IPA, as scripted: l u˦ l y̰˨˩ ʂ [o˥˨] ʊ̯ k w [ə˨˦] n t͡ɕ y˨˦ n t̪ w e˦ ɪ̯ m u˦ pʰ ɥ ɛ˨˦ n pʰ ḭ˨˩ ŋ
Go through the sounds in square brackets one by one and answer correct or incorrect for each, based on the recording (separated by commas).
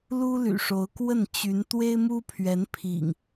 incorrect, incorrect